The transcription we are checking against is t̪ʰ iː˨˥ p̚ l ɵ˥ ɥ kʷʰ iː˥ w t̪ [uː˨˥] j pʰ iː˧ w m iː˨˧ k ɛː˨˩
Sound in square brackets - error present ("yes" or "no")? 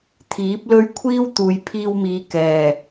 yes